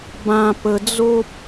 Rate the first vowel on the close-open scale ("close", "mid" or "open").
open